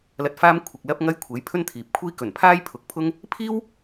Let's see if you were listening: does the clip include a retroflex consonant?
no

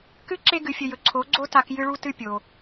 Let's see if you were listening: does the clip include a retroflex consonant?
yes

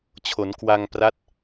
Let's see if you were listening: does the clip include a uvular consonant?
no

